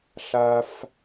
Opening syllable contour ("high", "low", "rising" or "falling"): high